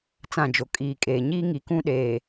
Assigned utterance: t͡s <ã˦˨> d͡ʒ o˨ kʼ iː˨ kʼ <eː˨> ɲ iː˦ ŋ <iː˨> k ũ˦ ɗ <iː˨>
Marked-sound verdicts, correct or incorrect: correct, correct, incorrect, incorrect

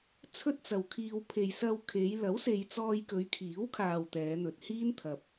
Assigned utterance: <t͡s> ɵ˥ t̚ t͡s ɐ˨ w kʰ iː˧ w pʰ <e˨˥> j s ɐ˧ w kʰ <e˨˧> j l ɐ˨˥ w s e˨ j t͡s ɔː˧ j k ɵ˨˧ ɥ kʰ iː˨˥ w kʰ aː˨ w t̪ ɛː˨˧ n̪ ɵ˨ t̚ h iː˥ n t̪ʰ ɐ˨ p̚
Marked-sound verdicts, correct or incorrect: incorrect, incorrect, correct

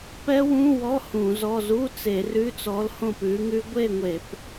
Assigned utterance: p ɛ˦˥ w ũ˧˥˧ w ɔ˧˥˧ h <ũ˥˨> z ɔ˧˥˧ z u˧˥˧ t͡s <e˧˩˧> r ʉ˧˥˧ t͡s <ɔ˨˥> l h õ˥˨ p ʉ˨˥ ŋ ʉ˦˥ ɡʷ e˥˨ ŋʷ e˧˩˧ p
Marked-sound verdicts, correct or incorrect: incorrect, correct, correct

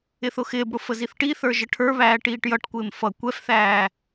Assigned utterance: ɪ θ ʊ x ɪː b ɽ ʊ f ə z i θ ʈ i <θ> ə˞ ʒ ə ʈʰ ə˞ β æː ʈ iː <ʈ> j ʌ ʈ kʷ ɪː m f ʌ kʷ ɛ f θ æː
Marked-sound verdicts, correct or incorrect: correct, correct

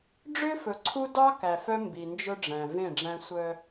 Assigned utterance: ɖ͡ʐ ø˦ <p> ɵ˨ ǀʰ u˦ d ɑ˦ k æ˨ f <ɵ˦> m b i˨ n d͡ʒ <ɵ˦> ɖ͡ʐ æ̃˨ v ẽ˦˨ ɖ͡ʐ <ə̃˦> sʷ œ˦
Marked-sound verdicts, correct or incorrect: incorrect, incorrect, correct, incorrect

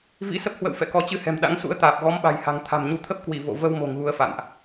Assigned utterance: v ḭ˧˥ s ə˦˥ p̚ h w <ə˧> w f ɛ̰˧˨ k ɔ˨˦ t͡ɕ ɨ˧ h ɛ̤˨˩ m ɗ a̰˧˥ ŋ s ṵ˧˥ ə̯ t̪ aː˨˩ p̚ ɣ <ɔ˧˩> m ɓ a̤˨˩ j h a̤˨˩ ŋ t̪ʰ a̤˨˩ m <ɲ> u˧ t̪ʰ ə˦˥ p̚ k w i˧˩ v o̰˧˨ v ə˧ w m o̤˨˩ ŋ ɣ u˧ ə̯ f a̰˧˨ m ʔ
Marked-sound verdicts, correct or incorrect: incorrect, incorrect, correct

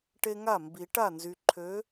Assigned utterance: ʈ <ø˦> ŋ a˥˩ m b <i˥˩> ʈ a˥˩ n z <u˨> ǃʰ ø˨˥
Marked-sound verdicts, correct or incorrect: incorrect, incorrect, incorrect

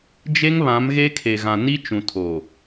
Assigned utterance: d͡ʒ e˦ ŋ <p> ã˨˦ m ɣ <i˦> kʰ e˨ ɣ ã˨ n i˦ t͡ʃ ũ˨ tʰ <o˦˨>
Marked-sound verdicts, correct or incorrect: incorrect, incorrect, incorrect

